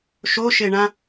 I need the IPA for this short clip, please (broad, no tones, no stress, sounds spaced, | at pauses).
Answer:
ʃ o ʃ e ɳ ã